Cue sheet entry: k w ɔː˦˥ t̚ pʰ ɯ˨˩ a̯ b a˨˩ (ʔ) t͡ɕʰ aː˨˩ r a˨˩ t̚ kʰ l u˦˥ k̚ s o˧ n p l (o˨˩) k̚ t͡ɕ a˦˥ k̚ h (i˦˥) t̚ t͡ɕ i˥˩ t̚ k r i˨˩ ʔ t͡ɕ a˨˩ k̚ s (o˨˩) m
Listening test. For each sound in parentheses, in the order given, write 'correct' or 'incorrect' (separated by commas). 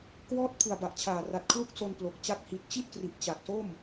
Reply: correct, correct, incorrect, incorrect